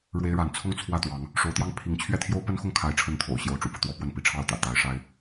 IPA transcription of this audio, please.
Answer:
ɻ w e˥ ɪ̯ ɻ a˧˥ n t͡sʰ ʊ˥˧ ŋ t͡sʰ w ä˥˩ t̪ w ɑ˧˥ ŋ | ʂ o˧˥ ʊ̯ t̪ j ɑ˥˩ ŋ pʰ i˧˥ ŋ t͡ɕʰ ɥ ɛ˥˩ t̪ʰ j o˥ ʊ̯ p ə˥ n x ʊ˥˩ ŋ kʰ a˧˥ ɪ̯ ʈ͡ʂʰ ə˧˥ n t̪ʰ o̰˨˩ ʊ̯ ɕ j o˧˥ ʊ̯ ʈ͡ʂ ṵ˨˩ p ɤ˦ t̪ w ɔ˧˥ p w ə˥˩ n p i˧˥ ʈ͡ʂʰ ɑ˥˩ ʊ̯ t̪ ä̰˨˩ t̪ a˧˥ ɪ̯ ʂ a˥ ɪ̯

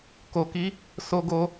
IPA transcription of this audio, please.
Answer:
k o˧ k i˦ | s o˦ ɡ o˦

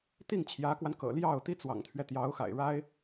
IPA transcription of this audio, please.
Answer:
t̪ i˥˩ ŋ t͡ɕʰ j ä˧˥ k w a˧ n k ɤ̰˨˩ l j ɑ˥˩ ʊ̯ t̪ i˥ t͡s w ɑ̰˨˩ ŋ t̪ʰ ɥ ɛ˦ t̪ j ɑ˧˥ ʊ̯ x a̰˨˩ ɪ̯ ɻ a˥ ɪ̯

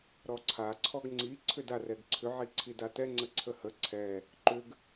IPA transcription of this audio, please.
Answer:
ɾ ɔ ǀʰ a ǀʰ ɔ ɡ ŋ͡ǀ i ǀʰ ʏ d a r ɛ ɡ ǀʰ ʏ ʕ i ǀʰ i d a t ɛ ŋ͡ǀ ə ǀʰ ə h ə ǀʰ ɛ | ǃ ʏ ɡ

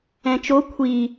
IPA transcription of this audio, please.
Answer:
ɛ̃ t͡ʃ o kʷʰ i

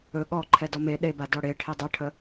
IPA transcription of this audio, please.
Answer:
ɵ ɠ ɔ ǃʰ ɛ d ɔ m e ɗ e b a d ɔ ɽ e ʈʰ e dˤ ə ʈʰ ə

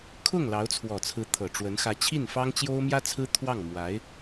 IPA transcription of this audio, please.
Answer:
kʰ ʊ˥˩ ŋ l ɑ˧˥ ʊ̯ t͡sʰ w ɔ˨˩ t͡sʰ ɹ̩˧˥ t̪ʰ ɤ˨˩ ʈ͡ʂ w ə˧˥ n x ä˧˥ t͡ɕʰ i˥˩ n f ɑ˥ ŋ t͡ɕ j o˥ ʊ̯ m j ä˥ t͡sʰ ɹ̩˥ t̪ʰ w ɑ˥˩ ŋ m w a˧˥ ɪ̯

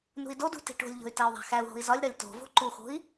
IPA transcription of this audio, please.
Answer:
n ṳ i̯ d o d ṳ t i̤ ʈ o̤ lʲ ʎ o̤ y̯ t æ u̯ ðˤ æ̤ x æ u̯ ɦ o̤ i̯ z ɒ lʲ ɾ ɒ lʲ t o̤ v o̤ ǃ u x o̤ i̯

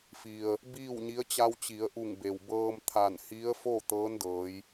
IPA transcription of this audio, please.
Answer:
f i˩ ə̯ | b iː˥˨ w ɲ i˧˥ ə̯ t͡ɕ a˧ w t͡ɕ i˩˧ ə̯ ʔ u˧˩ ŋ b e˩ w b ɤː˧ m t̪ʰ a˧˩ n h i˧˥ ə̯ f o˥˨ t̪ ɤː˧˥ n d ɤː˩˧ j

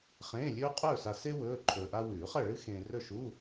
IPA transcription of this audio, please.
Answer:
χ ẽː˧˥˧ lʲ ɵː˥ qʼ ɵː˥˨ s a˧ s e˥ w ɵː˧˥˧ ǃʰ ɵː˧ ʔ a˥ w ʉː˨˩˦ χ ɐ˥˨ ɭ ɨ˥ x ẽː˧ r ɵ˥˨ ʃ u˧˥˧

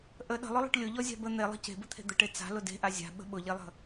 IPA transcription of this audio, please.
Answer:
ʔ ə ɗ ə̤ lˠ ʊ lˠ ə̤ ʈ lʲ ʊ ʎ ɔ zʲ a̤ b ə n̪ e lˠ ə̤ c e̤ b ə t̪ʰ e̤ d̪ ə ʈ e t͡s a̤ l ʊ d e̤ ʔ a zʲ a̤ ɓ ə̤ ɓ ʊ ʎ e lˠ ə̤

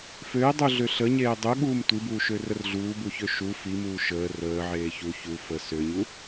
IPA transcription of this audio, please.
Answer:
f ø ɪ̯ dˤ u ɮ ø ɬ ə ɲ eː dˤ u ɠ uː m tʷ i b uː ʃ ø r ə r ɮ uː b u ç ø ʃ u f i m uː ʃ əː r əː ʕ eː ç u ç u f ə s ø ɲ u

